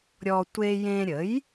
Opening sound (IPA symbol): ɾʲ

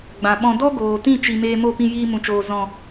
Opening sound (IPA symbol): ɡ͡b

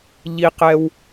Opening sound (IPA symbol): ʎ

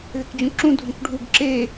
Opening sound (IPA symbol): ð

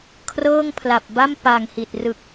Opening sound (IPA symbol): kʰ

